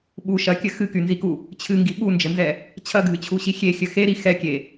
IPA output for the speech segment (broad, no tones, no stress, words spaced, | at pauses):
ɓu ʃɐkʲɘ xɨkynziku | t͡ɕʰɨŋɡi ɓund͡ʒɘnzɛ | t͡ɕʰɐɡʱɨt͡ɕʰuɕi xʲexʲɘ xeɾi xɛkʲe